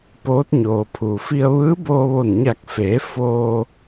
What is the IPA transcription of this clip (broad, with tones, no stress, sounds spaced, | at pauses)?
p oː˧˥ t̚ ɲ oː˩ pʰ uː˩ f i˧ ə̯ ʋ ɯː˧˥ b oː˧ ʋ o˧˩ n ɲ a˧˩ k̚ f eː˩˧ f oː˧